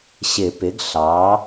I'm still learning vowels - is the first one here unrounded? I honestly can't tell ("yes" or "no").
yes